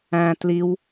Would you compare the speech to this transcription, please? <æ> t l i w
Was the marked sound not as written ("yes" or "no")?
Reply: yes